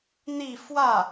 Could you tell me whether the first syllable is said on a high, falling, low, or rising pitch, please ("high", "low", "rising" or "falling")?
falling